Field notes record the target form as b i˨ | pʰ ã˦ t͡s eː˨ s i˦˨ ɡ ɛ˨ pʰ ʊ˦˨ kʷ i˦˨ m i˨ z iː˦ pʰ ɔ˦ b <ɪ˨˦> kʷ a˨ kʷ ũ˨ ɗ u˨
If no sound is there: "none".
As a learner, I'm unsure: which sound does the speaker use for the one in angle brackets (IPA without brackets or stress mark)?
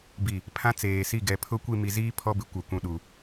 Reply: ɪ˨˦